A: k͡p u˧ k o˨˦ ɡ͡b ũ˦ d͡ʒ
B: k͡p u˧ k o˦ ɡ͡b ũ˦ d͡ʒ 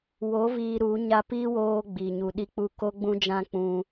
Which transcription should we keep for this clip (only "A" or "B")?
B